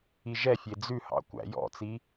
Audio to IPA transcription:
i ʒ ɛ fʲ e d͡z ʉ h ɑ̰ kʷ æ̰ j ɔ̰ t͡s i

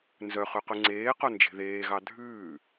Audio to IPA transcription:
n z œ χ ʉ q ʉ ŋ͡ǀ eː q o n d͡ʒ e̤ ð eː ɣ ɑ dʱ ʉː

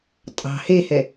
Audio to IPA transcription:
tʼ ɑ̤ h e h ɛ

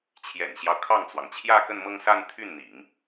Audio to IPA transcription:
t͡ɕʰ j ɛ̰˨˩ n ɕ j ɑ˦ ʊ̯ kʰ ɑ˥˩ ŋ t͡s w ɑ˩ ŋ t͡ɕʰ j ä˥˧ k ə˥˧ n m ɤ˥˧ ŋ s a˥˧ n t̪ʰ y˥˩ n n̪ ḭ˨˩˦ ŋ

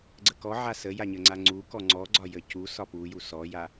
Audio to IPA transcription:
ɡ͡ǀ ə k ɔ ʕ a s ə j a ɲ ə ŋ͡ǀ a ŋ͡ǀ u k ɔ ŋ͡ǀ ɔ ɡ͡ǀ ɒ j ə c u s ɒ p u j u s ɔ j a

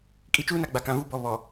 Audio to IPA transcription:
kʼ i˨ t͡ʃ uː˦ n a˨ ɡ͡b a˨ k ã˨ v uː˦ b ɔ˨ β ɔ˨

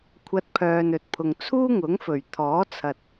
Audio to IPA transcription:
kʷʰ ɐ˧ t̚ pʰ œː˨ n ɵ˨ t̚ pʰ ʊ˨ ŋ t͡sʰ uː˥ ŋ ʊ˨˥ ŋ f ɵ˨˩ ɥ t̪ʰ ɔː˨˥ t͡sʰ ɐ˨ t̚

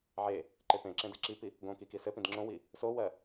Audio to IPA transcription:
ʕ e | ǃ e p ẽ ǁ ẽ d e ǁ i p i | ɡ õ k i k i s ɘ p ĩ d ŋ͡ǁ õ w i | s o w ɜ

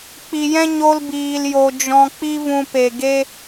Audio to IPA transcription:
k͡p i˨ j ɛ̃˦ ɲ o˧ l b iː˨ l j o˨ d͡ʒ ɔ̃˨ k͡p i˧ v ũ˧ p e˨ ɡ e˦

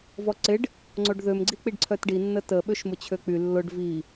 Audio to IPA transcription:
v ɔ ǀ ɪ ɖ | ŋ͡ǀ o ɖ ð ø m ɡ͡ǀ i k͡p i ɖ ǀʰ œ t ɖ i nː ə t ə ɓ ø ʃ m ʊ t͡ɕʰ ø k͡p y lː ʊ ɖ v i

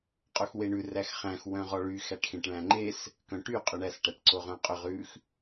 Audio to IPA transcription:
qʼ o x w e ɳ ʉ r æ x χ æ̃ x w œ̃ ʁ ɔ ɭ y x æ ʈ x ẽ ʈ ɭ æ̃ ŋ͡ǃ e s | k œ̃ ʈ y qʼ ø ɳ æ s ʈ æ ʈ ǀ o ʁ œ̃ qʼ ɵ ʁ ʉ x

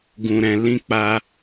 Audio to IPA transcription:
ɡ ũ˨ ɾ ɛ̃˨ l ĩ˧ k͡p a˧

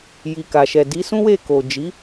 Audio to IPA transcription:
j i˨ k a˨ ʃ ɛ˨ d i˨˦ s ũ˦ w e˦˨ k o˨ d͡ʒ i˨˦

